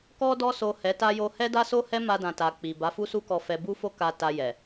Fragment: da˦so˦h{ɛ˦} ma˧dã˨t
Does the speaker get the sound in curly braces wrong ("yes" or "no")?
no